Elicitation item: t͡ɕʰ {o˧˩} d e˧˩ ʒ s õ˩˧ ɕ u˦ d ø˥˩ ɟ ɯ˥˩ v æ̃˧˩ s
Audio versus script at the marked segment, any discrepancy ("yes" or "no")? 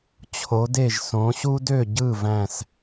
yes